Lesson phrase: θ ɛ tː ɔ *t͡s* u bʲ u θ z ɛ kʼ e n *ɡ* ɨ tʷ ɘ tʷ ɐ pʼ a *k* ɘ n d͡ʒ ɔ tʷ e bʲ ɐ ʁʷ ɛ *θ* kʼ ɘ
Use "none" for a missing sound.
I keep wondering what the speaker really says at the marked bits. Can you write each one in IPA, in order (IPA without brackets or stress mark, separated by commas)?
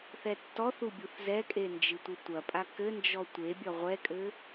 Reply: θ, d͡ʒ, k, none